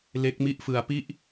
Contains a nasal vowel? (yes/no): no